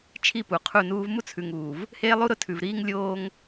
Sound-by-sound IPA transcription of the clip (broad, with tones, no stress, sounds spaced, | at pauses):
t͡ʃʰ i˦˨ p u˨ qʰ u˦˨ n uː˦ v m u˦ t͡sʰ ʉ˨ ŋ uː˨ v | h eː˦ lˠ u˦ ɾ ʊ˦ tʰ ʉ˨ v ɾ iː˦ ŋ lʲ oː˦ ŋ